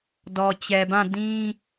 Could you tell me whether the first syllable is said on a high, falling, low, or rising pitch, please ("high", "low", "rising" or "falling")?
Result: low